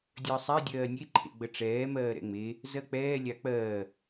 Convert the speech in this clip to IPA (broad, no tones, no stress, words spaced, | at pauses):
dʲəːsˤɛ dʲɜːnʲe ǃʰḛɡ͡bəʈ͡ʂɛː mɜːɾɛ̰ŋ͡me | zɜk͡pɛː lʲak͡pɜː